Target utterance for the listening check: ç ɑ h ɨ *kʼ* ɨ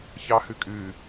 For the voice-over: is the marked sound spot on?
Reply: yes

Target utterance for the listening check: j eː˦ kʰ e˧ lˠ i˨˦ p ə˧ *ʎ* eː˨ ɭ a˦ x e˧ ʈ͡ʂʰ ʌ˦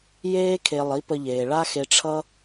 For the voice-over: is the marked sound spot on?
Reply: yes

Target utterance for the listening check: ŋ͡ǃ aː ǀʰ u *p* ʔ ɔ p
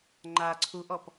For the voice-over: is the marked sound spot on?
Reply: no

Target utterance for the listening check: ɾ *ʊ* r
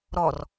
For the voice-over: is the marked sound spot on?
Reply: no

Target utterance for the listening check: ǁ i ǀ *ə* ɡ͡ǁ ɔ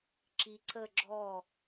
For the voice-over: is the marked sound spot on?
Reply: yes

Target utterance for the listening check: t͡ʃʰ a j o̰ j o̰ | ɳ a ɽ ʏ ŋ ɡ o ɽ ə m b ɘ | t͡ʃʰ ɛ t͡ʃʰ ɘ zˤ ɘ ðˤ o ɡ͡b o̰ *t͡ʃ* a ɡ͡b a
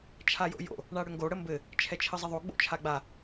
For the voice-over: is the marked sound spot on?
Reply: no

